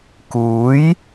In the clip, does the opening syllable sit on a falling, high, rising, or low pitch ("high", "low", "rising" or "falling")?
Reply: rising